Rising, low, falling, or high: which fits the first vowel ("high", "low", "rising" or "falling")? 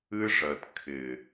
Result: high